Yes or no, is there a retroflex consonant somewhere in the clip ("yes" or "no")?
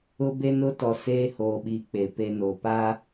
no